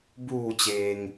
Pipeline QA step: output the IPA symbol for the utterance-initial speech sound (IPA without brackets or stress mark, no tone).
b